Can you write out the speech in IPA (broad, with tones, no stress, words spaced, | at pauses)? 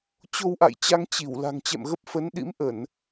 t͡ɕo˧wʔa̰˧˨jt͡ɕa˧ŋ t͡ɕi˧˩w la̤˨˩ŋt͡ɕɛ̰˧˨mɣə˦˥p̚ fə˨˦nɗḭ˧˥m ʔə˧˩˨n